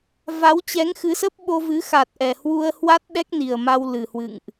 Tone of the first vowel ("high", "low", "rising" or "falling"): rising